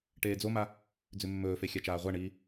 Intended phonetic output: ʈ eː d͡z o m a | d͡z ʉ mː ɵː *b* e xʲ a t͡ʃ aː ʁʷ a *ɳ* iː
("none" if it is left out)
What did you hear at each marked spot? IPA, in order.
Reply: f, ɳ

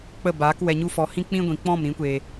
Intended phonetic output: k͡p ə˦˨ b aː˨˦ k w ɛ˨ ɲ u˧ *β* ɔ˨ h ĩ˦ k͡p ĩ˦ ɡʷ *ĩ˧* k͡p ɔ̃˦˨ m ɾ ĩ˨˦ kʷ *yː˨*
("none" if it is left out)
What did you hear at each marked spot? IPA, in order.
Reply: f, ĩ˨, eː˨

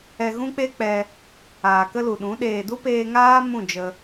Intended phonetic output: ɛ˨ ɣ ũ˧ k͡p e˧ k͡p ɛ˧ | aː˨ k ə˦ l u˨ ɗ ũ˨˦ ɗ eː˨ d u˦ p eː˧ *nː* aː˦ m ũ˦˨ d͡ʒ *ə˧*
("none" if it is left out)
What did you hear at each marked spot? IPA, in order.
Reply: ŋ, ə˧

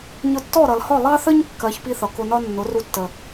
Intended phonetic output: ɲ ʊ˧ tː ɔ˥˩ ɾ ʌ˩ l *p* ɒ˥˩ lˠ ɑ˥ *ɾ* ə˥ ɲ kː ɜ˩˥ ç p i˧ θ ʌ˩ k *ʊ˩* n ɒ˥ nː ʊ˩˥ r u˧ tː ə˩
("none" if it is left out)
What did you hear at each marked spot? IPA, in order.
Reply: h, θ, ʊ˧

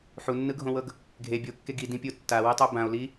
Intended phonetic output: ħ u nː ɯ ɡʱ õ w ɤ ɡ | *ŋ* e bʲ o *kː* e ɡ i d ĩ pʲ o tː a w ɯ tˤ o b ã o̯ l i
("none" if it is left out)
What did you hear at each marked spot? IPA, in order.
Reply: ɡʱ, kː

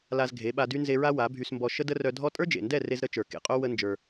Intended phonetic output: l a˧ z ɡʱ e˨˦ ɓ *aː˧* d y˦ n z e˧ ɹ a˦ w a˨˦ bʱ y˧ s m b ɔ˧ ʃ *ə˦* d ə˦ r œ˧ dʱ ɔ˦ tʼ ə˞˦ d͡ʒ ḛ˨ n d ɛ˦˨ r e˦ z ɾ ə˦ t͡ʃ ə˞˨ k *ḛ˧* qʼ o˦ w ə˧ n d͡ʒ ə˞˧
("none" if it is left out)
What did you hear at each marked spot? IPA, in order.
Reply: a˧, ə˦, ḛ˨

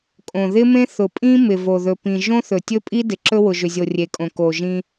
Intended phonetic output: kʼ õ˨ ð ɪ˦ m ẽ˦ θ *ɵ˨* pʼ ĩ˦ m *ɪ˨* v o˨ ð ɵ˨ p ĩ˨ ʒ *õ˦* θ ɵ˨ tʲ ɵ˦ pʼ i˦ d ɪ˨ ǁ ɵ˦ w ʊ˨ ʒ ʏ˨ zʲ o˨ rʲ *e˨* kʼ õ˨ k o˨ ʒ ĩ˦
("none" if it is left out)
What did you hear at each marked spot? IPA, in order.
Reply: ʊ˨, ɪ˨, õ˦, e˨

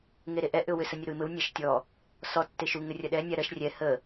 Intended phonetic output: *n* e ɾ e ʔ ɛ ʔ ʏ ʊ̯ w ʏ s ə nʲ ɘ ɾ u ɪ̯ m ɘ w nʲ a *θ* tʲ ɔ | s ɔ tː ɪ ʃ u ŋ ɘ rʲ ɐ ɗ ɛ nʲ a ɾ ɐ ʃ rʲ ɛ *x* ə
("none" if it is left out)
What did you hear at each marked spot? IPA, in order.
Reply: ŋ, ʃ, h

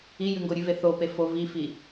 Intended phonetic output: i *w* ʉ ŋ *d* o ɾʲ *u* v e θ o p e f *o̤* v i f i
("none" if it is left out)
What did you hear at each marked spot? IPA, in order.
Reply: j, ɡ, ʉ, o

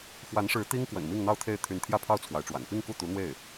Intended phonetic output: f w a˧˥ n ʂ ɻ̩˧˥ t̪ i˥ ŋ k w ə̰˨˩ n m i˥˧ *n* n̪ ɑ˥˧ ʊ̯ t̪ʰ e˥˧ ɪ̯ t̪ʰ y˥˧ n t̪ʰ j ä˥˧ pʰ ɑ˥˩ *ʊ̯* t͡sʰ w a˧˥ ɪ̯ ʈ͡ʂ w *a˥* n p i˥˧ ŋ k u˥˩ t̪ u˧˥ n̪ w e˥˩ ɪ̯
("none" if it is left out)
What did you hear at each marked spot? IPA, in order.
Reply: ŋ, ʊ̯, a̰˨˩

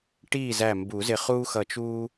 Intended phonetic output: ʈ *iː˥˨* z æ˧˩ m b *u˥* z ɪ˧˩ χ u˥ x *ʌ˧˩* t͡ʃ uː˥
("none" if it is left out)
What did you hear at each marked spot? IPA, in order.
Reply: iː˥˨, u˨˩˦, ʌ˧˩

